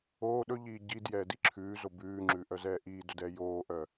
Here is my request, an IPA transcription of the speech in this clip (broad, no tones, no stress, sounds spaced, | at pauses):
oː ɗ ɵ ʎ iː ɟ i d j ɛː d i ǁʰ ʉː z o b ʉː ŋ͡ǁ ʉ ʔ œ z ɛː ʔ iː d ɵ d ɛ j oː ʔ œ